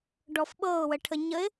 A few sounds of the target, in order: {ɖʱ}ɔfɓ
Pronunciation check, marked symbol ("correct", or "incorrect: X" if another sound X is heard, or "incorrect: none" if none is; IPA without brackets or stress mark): incorrect: ɖ